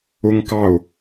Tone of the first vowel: high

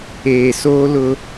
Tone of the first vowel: low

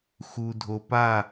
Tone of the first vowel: low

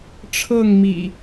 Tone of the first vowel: falling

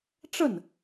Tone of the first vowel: falling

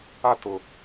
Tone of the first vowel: high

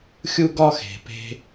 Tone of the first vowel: high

